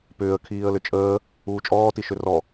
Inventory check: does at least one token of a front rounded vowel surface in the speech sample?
yes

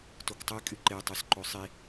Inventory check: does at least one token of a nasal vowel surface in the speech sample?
no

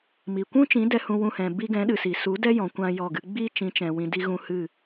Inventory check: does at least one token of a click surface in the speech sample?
no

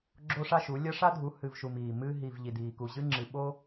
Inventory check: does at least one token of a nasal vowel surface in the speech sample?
no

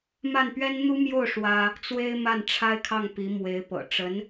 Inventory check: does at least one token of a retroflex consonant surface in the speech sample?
yes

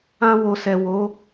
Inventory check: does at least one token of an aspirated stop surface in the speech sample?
no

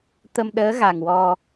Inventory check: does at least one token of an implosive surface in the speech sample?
yes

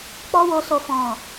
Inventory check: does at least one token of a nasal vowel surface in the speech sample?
yes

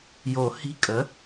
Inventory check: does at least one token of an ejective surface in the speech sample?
yes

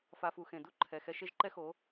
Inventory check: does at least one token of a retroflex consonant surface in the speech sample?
no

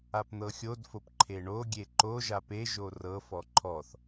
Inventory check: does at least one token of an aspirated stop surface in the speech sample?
yes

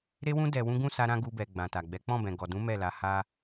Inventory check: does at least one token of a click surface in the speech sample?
no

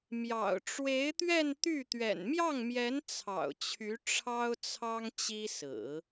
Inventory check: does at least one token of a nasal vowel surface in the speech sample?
no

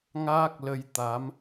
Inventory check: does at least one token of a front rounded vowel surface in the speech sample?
no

